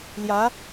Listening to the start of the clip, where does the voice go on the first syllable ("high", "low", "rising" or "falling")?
rising